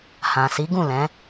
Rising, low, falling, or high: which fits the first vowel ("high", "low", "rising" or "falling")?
low